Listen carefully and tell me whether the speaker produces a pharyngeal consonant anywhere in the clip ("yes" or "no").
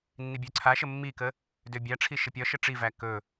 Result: no